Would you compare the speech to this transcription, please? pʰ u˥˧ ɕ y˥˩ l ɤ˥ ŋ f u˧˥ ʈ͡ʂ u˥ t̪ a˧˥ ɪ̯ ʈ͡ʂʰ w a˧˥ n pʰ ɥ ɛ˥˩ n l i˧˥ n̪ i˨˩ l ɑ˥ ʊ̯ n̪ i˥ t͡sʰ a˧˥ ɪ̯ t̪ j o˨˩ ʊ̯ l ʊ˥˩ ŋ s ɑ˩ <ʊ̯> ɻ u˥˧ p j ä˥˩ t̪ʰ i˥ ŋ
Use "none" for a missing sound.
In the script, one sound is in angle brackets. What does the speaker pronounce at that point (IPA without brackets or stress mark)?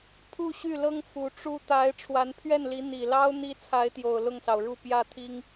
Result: ʊ̯